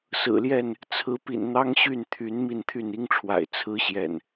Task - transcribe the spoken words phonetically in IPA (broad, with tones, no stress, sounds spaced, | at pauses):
s ɹ̩˨˩ l j ɛ˥˨ n | t͡sʰ ɹ̩˨˦ p ḭ˨˩ n n̪ ɑ˦ ŋ ɕ y˥˨ n t̪ʰ y˨˦ n m i˥˨ n t̪ʰ y˥˨ n i˦ ŋ ʈ͡ʂʰ w a̰˨˩ ɪ̯ t͡sʰ ɹ̩˦ ɕ j ɛ̰˨˩ n